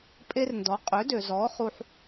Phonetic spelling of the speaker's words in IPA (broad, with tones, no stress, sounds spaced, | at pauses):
pʼ e˥ r n d ɔ˩˥ qʼ ø˩˥ d ø˩ z ɔː˩˥ χ u˧ ħ